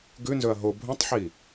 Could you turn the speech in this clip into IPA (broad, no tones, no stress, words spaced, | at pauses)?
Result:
ɡʉnzɵɐ̯ ɦo bʱũtˤħi